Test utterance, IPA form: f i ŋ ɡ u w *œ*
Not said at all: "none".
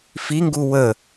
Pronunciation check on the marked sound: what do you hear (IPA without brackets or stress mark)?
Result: ə